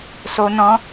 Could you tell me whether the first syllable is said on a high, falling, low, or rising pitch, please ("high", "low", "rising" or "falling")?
high